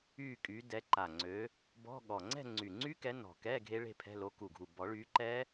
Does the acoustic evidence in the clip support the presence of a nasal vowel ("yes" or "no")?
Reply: no